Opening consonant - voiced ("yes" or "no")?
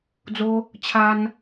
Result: yes